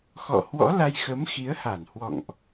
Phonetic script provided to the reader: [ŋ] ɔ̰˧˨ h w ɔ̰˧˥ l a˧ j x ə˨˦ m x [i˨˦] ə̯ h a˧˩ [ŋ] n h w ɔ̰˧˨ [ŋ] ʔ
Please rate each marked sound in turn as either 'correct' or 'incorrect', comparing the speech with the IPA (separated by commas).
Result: incorrect, correct, incorrect, correct